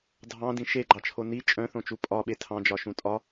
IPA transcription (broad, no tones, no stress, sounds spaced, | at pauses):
dʱ ɑ̃ d ĩ ʃ e ɡ͡ǃ ɑ t͡ʃʰ o n i t͡ʃʼ œ̃ θ õ t͡ʃ u pʼ ɒ ɓ e tʰ ɑ̃ d͡ʒ ɒ ʃ ũ tʼ ɒ